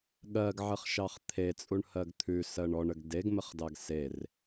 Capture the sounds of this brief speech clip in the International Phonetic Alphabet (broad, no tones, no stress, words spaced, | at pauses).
ɠɜɡʕəχʃɑχ t̪ʰet͡sʼuɳhɜɡ t̪ʰʉsɜɳ ɔɳəɡ deɡməχdɑɡ ser